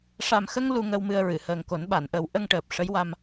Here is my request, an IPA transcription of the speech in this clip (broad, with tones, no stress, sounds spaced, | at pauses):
ʂ a˨˩ m x ə˧ ŋ l u˧ ŋ ə˧ w m ɨ˧ ə̯ ɹ ɨ˨˩˨ h əː˨˩ ŋ k o˨˩˦ n ɓ a˨˩˨ n ʔ ə˨˩˦ w ʔ ə˧ ŋ ʈ əː˨˩ p̚ ʂ ə˧˥ j w a˧ m